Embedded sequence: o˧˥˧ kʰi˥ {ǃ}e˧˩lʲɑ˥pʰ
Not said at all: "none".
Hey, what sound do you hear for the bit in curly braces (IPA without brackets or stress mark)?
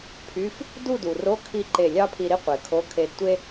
ǃ